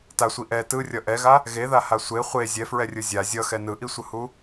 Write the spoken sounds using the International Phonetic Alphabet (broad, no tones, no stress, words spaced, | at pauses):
tasʷi ʔɛ tɯrʲʌ ʔɛɣa | ɣeðaha sʷe χʷe zʲɛfɹɛrʲɯ zʲa zʲʌxɛ nɯʔisʷɯhu